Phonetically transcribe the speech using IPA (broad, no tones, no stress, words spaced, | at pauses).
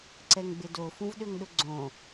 ǀɛŋɡ͡bɪdo fũvɗøŋɗʊɡ͡ǀõ